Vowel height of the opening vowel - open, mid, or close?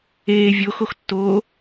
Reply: mid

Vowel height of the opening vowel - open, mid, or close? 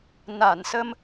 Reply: open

